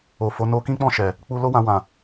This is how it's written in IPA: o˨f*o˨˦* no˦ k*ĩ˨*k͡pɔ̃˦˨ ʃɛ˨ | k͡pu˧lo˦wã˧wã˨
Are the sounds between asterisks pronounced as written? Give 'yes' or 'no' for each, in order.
yes, no

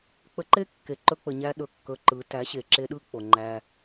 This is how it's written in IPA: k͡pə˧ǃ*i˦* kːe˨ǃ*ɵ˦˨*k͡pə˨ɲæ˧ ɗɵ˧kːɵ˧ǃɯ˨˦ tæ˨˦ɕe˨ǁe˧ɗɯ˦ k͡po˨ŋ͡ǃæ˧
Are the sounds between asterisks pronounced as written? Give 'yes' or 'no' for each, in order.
no, no

